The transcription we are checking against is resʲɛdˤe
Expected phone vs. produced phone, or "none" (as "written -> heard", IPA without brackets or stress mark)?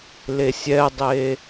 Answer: r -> l